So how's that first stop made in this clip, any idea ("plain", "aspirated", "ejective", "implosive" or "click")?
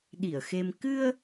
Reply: implosive